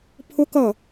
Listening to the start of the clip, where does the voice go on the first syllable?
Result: high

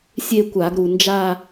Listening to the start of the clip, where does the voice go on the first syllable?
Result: falling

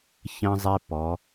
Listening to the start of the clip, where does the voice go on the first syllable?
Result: high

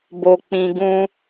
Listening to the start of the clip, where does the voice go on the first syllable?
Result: low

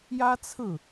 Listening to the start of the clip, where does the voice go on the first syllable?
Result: high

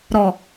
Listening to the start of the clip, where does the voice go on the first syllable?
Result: low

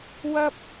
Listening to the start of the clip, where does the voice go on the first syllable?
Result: high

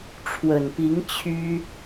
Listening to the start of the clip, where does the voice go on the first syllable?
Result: low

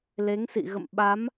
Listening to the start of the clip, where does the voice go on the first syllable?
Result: rising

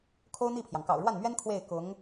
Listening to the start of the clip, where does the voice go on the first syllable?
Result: high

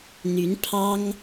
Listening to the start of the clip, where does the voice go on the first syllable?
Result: rising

